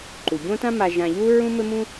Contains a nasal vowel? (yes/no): yes